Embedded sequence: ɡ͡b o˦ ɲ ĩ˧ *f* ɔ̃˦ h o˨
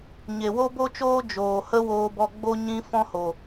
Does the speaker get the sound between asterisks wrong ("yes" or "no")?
no